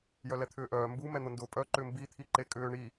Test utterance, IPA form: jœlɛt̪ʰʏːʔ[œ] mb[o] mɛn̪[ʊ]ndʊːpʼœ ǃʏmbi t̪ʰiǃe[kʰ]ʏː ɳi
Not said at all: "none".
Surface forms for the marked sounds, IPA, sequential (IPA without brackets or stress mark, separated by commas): œː, u, ʊ, kʼ